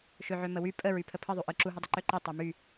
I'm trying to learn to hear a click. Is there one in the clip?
yes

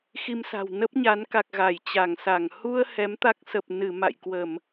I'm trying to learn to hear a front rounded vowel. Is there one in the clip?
no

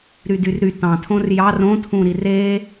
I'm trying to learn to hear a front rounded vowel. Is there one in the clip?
yes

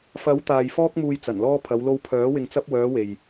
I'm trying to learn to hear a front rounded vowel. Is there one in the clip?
yes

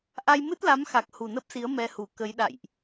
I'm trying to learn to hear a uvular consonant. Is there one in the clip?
no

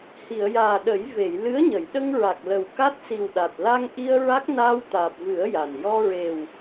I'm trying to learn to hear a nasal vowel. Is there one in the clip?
no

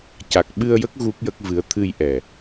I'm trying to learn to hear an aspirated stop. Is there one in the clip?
yes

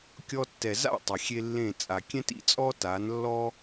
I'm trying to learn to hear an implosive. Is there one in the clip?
no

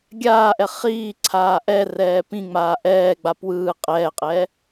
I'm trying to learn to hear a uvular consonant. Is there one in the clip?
yes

